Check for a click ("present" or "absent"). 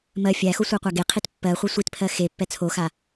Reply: absent